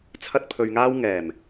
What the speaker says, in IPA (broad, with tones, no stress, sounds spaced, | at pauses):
t͡sʰ ɐ˥ t̚ pʰ ɵ˧ ɥ ŋ aː˥ w ŋ ɛː˨˩ m